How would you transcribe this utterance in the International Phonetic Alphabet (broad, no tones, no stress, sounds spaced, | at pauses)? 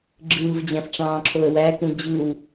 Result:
ɡ͡ǁ ɯː v d͡ʑ æ̃ f ʈ͡ʂ ɑ̃ː ǁʰ o ə̯ w æ k ũ d͡ʑ ɯ w